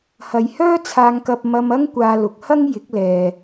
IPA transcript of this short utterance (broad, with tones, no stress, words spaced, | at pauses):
hɐ˨jhœː˥ t͡sʰaː˧ŋkɐ˧p̚ mɐ˧mɐ˥ŋ kʷaː˧lʊ˨˥k̚ hɐ˥ŋjɪ˨˥k̚lɛː˨